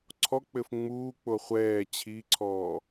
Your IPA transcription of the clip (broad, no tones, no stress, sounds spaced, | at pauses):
ǀʰ ɔ k͡p ɘ f ŋ͡m uː k͡p o χʷ ɛː t͡ɕʰ i ǀʰ ɔː